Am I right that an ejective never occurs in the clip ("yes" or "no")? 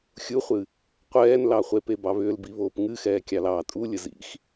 no